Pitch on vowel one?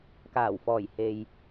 low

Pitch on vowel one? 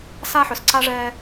high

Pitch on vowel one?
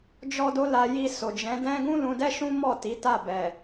high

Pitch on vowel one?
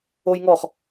high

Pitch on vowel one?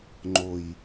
low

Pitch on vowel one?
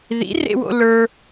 rising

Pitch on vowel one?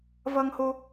high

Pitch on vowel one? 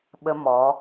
high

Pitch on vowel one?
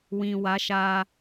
low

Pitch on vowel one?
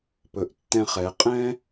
low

